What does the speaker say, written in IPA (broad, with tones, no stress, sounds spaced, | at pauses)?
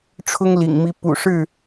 ʈ͡ʂʰ ʊ˦ ŋ l ḭ˨˩ ŋ m i˨˦ p ṵ˨˩ ʂ ɻ̩˥˨